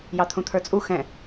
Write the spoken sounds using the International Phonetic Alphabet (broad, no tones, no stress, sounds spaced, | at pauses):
j ɑ t̪ʰ ũ t̪ʰ ə˞ t͡sʼ u x ɛ̃